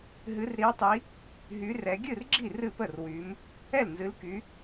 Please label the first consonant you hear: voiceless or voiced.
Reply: voiced